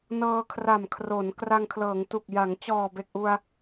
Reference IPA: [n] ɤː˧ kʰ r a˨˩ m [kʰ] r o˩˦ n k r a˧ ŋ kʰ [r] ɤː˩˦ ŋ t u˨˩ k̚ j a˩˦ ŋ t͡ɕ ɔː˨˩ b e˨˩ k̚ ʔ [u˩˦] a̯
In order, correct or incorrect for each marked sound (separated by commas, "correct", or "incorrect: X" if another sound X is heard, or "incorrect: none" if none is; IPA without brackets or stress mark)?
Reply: correct, correct, incorrect: l, incorrect: u˧